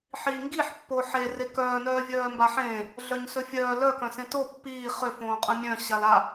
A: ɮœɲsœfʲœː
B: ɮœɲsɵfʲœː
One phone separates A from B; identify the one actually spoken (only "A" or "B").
B